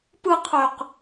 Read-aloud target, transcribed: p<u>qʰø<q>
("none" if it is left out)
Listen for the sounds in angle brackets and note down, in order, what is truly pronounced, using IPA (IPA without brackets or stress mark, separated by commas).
ɯ, q